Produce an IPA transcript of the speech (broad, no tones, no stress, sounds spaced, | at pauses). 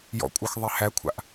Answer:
j ɔ̰ kʷʼ œ x ðˤ e h æ kʷʰ a̰ ʔ